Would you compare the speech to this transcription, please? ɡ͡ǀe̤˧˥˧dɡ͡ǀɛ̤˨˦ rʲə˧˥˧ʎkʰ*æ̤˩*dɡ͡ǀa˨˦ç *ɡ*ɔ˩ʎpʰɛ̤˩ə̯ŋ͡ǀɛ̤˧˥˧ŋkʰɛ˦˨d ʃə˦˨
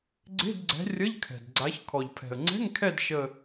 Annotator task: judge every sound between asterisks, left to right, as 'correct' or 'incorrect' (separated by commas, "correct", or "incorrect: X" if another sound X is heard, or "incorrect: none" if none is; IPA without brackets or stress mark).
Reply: incorrect: ɛ̤˩, incorrect: kʰ